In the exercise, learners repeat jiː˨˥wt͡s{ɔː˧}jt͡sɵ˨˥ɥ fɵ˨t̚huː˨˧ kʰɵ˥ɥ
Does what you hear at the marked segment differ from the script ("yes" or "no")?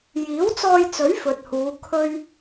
no